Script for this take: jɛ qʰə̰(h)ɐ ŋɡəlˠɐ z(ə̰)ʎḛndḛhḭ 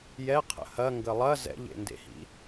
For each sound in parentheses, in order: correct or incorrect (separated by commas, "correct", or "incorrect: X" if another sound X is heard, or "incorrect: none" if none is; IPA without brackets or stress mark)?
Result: correct, incorrect: ɛ̰